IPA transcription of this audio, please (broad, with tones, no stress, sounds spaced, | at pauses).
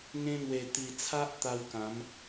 ŋ ẽ˧ n̪ w e˨˩ t̪ i˨˩ t͡sʰ a˦ ʔ t̪ a˧ w k ã˨˦ m